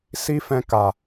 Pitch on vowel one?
high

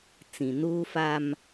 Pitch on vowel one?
low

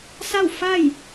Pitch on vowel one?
falling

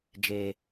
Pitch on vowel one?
low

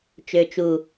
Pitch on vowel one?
low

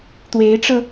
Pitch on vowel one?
rising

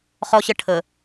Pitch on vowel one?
high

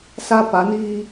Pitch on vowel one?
high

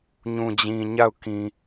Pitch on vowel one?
low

